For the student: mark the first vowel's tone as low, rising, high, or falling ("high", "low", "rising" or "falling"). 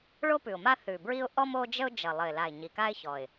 high